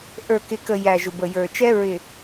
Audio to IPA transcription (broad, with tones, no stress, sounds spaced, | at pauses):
ʔ ə˞˨ k ɪ˨ k ə˨ j æ˨ ʒ ʊ˨ b ə˨ j ə˞˨ t͡ʃ ɛ˦ ɹ ɪ˨